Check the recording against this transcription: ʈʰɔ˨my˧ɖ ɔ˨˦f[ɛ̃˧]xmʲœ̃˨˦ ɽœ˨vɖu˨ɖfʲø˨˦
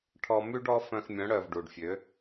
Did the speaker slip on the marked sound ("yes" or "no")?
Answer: yes